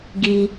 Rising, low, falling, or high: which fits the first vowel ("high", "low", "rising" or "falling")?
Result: low